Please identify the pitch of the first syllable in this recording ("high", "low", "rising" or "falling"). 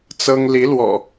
high